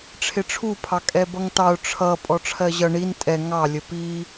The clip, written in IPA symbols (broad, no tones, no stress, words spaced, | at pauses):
ʈ͡ʂʰɪʈ͡ʂʰu pʰɑkʼɛbʌŋtɑʊ̯ ʈ͡ʂʰʌ pʼɔʈ͡ʂʰɜʑʌ ɳin tʼɛ ŋɑ lʲəpi